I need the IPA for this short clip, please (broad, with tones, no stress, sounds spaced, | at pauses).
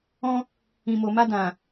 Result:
ɔ̃˦ | ĩ˨ m o˨ m a˧ d ã˨